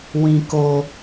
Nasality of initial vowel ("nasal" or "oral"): nasal